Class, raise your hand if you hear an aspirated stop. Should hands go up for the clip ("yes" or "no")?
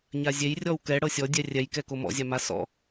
no